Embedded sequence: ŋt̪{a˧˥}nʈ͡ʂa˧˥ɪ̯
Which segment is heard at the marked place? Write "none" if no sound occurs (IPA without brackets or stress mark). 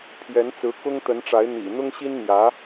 ə˧˥